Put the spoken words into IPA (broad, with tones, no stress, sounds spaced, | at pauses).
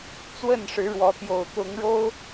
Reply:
t͡s w ə˥˨ n ʂ ɻ̩˨˦ ɻ w ɔ˨˦ t̪ j o˨˩ ʊ̯ t̪ ʊ˨˦ ŋ ɻ o˦ ʊ̯